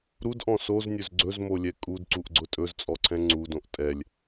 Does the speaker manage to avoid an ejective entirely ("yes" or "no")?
no